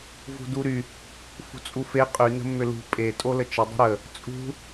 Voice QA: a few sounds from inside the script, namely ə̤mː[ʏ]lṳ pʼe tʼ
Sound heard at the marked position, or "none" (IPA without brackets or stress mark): ʏ